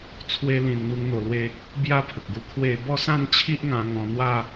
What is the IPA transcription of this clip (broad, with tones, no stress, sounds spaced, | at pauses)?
t͡sʰ w e˦ l ĩ˧ n n̪ u˦ ŋ n̪ o˧ l w e˦ | b j a˥˧ pʰ ə˨ k̚ ɡ u˧ kʰ w e˥˧ b ɔ˥˧ s ã˥˧ n t͡ɕʰ i˦ ʔ ŋ ã˧ ŋ ɔ̃˧ n̪ w a˥˧